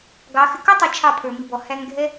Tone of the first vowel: rising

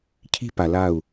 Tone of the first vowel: high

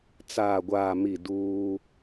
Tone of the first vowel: low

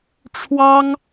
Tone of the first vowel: high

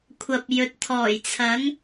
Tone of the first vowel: low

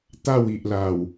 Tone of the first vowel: falling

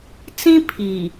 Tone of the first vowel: high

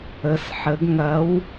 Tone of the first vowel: rising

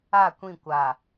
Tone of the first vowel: falling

